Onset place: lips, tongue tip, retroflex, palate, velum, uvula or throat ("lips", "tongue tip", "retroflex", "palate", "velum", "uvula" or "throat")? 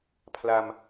lips